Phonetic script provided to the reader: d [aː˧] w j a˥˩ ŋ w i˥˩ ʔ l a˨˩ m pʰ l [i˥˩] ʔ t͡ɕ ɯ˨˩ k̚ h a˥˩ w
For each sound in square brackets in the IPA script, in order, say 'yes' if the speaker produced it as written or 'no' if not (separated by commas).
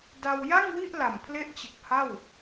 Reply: no, no